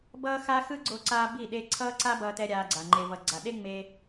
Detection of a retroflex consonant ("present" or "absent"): absent